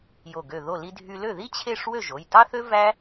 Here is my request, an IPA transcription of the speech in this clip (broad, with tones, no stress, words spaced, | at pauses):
jo˧˩ɡø˧˩ ðo˧˩li˧dʱy˧ lø˥˨ði˥ t͡ɕʰe˥˨ʂ wø˥˨ʒo˩˧˩jtɑ˥θø˥ væ˥